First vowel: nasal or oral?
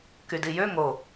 oral